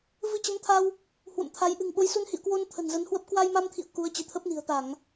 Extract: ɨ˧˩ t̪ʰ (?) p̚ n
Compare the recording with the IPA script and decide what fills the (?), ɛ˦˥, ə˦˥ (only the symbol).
ə˦˥